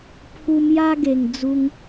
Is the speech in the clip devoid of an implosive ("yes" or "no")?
yes